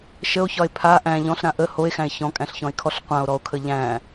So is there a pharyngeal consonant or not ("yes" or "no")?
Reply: no